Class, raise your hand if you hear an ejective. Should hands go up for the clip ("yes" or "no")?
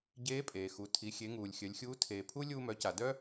yes